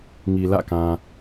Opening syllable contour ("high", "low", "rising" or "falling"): low